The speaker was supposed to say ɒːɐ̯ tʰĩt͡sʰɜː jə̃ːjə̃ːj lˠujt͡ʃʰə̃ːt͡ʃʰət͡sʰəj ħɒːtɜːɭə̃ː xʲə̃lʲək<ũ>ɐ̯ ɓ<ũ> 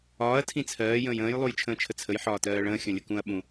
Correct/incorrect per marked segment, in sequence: correct, correct

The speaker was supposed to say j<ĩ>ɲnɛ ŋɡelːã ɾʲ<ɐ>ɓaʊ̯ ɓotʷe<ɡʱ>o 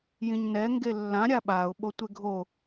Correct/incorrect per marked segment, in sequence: correct, incorrect: a, correct

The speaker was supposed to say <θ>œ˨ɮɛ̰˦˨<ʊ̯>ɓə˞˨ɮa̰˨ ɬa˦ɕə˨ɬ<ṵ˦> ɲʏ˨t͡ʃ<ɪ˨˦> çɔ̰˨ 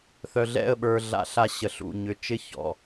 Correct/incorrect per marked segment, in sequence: correct, incorrect: ə̯, incorrect: ṵ˨, incorrect: ɪ˦

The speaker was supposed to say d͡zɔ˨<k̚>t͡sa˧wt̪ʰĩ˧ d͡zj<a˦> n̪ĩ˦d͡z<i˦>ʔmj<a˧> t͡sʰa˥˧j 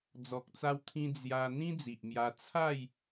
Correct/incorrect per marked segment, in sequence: correct, incorrect: a˧, incorrect: i˨, correct

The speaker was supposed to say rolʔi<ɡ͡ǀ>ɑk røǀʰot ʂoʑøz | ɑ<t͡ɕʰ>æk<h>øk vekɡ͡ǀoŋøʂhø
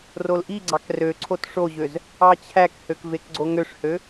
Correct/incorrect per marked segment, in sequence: correct, correct, correct

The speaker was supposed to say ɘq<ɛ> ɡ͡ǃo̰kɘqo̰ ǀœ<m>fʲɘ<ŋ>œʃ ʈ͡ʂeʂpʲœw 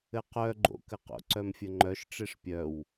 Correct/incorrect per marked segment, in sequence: incorrect: œ, correct, incorrect: ŋ͡ǃ

